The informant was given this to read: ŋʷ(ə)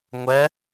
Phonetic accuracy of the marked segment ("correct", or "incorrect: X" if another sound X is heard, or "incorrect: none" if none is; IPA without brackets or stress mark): incorrect: ɛ